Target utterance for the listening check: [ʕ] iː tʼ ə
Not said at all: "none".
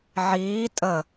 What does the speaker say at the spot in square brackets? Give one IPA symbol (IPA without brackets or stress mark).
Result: ʕ